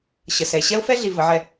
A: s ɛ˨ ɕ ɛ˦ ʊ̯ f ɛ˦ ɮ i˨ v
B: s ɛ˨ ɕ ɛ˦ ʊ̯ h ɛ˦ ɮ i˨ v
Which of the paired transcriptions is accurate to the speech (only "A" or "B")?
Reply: A